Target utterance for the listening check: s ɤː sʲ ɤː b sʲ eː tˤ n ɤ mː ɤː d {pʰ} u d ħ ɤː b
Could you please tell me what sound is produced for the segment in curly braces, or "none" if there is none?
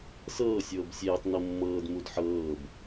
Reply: m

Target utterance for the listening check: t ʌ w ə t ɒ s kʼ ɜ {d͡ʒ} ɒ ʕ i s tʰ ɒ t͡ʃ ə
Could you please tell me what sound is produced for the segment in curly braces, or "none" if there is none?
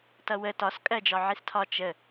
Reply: d͡ʒ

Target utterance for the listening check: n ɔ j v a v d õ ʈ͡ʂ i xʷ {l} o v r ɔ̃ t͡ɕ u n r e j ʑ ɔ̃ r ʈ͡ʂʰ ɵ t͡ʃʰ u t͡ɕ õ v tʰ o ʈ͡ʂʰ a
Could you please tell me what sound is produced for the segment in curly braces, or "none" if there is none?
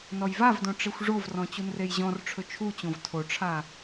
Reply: ʐ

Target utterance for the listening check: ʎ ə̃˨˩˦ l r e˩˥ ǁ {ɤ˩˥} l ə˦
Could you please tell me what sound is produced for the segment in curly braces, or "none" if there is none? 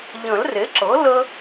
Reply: ɤ˩˥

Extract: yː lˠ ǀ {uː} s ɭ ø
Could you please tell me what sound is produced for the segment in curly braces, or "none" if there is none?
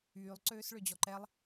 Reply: øː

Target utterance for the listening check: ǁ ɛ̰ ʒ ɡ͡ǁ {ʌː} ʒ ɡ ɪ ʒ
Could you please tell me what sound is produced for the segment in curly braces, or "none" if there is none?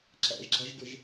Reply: ʌ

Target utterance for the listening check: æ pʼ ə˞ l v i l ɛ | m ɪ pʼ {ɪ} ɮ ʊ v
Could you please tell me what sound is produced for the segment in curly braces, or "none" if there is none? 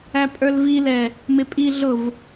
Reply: i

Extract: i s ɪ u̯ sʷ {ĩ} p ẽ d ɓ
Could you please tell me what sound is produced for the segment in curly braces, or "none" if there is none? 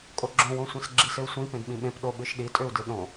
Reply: ĩ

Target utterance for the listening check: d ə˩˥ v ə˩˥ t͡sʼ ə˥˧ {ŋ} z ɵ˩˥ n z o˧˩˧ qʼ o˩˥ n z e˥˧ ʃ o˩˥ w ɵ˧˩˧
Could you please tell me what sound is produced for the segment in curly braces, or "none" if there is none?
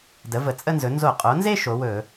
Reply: n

